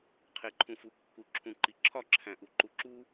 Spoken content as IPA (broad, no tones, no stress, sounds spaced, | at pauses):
qʰ e ǃʰ ũ f u kː u ǁʰ ũ ǃ i ǁʰ ɒ ǁʰ æ̃ ʔ u ǃ u ǁ u